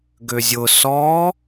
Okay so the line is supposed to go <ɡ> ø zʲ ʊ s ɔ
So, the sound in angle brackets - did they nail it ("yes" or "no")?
yes